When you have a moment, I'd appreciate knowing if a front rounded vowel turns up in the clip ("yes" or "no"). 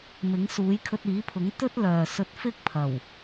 yes